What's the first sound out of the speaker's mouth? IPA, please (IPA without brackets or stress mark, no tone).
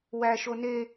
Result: w